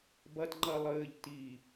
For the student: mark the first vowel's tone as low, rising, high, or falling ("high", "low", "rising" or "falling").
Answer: low